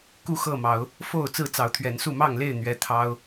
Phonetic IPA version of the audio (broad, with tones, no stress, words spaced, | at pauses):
ku˥˨xɤ˥˨mɑ˨˦ʊ̯ | fo˥˨ʊ̯ t͡sɹ̩˥˨t͡sɑ˨˦ʊ̯t̪ʰɥɛ˨˦nsu˥˨ mɑ˥˨ŋle˥˨ɪ̯ n̪ɥɛ˦t̪ʰɑ˦ʊ̯